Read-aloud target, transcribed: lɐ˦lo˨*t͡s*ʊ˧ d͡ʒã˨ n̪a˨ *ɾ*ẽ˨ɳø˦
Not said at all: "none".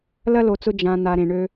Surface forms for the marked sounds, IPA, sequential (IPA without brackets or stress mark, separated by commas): t͡s, ɾ